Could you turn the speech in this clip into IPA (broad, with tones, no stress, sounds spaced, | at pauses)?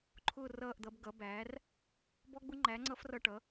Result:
ǃʰ ʊː˥˨ r ʌː˥˨ ʔ d̪ ʌ˩˥ b ɡ ʌ˩˥ b æː˩˥ r | b ɔ˦˥ ɡ͡b ʊ˦˥ ŋ͡ǃ æ˩˥ ŋ͡ǀ ʌ˦˥ f r ʌ˥˨ ʈ ʌ˩˥